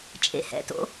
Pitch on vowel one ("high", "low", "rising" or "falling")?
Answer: low